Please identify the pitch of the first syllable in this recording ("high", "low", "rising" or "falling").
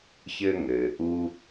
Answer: high